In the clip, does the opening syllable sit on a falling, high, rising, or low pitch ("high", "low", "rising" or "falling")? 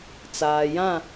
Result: low